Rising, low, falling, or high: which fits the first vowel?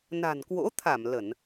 low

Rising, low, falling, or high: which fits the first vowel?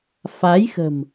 rising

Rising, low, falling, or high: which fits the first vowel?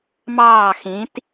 falling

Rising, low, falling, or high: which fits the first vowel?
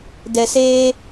low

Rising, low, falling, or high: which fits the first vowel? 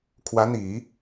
rising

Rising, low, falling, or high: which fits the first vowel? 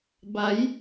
rising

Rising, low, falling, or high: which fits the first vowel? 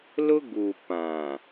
high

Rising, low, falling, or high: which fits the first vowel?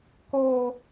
high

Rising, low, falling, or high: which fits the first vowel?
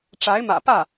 rising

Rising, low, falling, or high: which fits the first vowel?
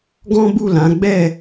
high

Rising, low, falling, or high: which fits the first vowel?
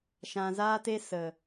low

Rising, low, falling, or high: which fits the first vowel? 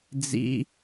high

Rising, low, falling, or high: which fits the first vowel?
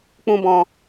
high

